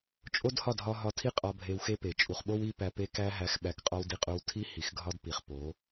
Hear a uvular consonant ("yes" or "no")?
yes